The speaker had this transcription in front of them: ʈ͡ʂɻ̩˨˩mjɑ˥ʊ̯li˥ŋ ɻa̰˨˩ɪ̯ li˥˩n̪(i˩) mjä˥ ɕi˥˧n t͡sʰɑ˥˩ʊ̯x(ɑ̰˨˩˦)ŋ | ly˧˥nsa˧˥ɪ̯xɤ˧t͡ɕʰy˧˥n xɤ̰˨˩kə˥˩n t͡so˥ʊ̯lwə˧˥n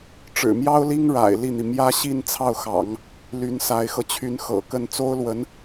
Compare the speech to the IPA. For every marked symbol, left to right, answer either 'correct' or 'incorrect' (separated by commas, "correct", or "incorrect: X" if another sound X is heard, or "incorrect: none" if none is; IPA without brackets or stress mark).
correct, correct